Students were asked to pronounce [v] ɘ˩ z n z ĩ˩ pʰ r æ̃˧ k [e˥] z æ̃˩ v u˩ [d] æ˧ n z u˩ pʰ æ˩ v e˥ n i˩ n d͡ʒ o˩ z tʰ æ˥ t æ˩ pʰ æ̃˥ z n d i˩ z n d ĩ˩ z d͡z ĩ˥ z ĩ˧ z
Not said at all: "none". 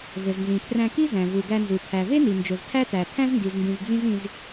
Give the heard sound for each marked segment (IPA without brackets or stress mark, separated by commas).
v, i˥, ɡ